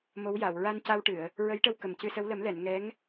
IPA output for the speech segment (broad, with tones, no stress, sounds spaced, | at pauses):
m o˧˥ w j a˨˩˨ w ɹ a˧ n c a˧ w ʈ ɨ˨˩˨ ə̯ | ɹ ə˧˥ j ʈ ə˧ w k ə˨˩ m c ɨ˧ s ə˧˥ w l ə˨˩˦ m l ɛ˨˩˨ n ŋ ɛ˧˥ ŋ